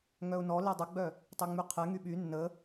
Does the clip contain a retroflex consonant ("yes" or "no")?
no